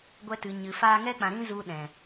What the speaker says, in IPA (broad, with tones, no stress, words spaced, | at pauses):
ɡʷɛ˧tɨ˨ɲɨ˨ faː˧ŋɛ˦k͡pã˨ɾĩ˦ zu˧ɗɛ̃˨